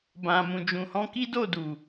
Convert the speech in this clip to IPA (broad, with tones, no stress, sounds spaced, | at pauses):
b ã˨ m ũ˨ d͡ʒ ũ˨ h ɔ̃˧ k i˦ d o˦˨ d u˨